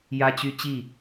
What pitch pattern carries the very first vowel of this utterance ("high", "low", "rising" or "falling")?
high